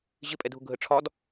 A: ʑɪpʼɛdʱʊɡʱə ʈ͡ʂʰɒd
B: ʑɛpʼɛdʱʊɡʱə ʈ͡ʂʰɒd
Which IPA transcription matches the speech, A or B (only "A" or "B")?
A